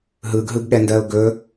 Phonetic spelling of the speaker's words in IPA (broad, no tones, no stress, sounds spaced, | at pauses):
ɦ ɯ ɡ ɦ ɯ ɡ ɠ ɛ n d ɜ ʊ̯ ɡ ɵ